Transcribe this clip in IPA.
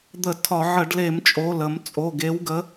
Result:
d̪ ə˧˩˧ tʰ ɒ˧˩˧ ʕ ə˧˩˧ ɖ l e˧˩˧ m t͡ʃʼ o˩˧˩ l ə˧˩˧ m t͡sʼ o˩˧˩ ɡ e˨˥ w ɡ ə˨˥

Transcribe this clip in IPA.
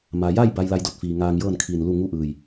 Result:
m a˩ j a˥˨ j b a˧ j l a˧ j d o˧˩ t̚ f iː˩ ŋ aː˧ ŋ j ɤː˥˨ n kʰ iː˧˩ n l u˥˨ ŋ u˥˨ ʔ ɯː˧˩ j

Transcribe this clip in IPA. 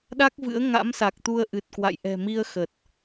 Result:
ɗ a˦˥ k̚ v ɨ̰˧˥ ə̯ ŋ a̰˧˥ m s a˨˩ k̚ t̪ u˧ ə̯ ʔ ɨ˨˩ t̚ k w a̰˧˨ j ʔ ɛ̤˨˩ m i˧ ə̯ x ə˨˩ t̚

